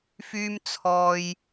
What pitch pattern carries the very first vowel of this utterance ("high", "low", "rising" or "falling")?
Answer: high